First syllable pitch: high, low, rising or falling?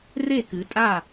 falling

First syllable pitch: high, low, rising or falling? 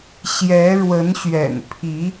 rising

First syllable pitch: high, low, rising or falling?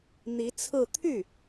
rising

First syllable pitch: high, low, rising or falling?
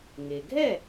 low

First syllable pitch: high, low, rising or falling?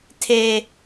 high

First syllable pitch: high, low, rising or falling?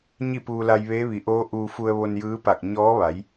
falling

